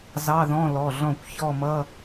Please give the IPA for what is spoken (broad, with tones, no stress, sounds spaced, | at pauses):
z ɑ˧˥˧ ð ɔ̃˧˥˧ l ɔ˩˧˩ ɮ ɔ̃˥˩ kʷ ç ɔ˥˧ m ʌ˧˥˧